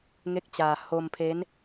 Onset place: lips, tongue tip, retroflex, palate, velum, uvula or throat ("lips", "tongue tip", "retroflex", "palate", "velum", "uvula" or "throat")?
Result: velum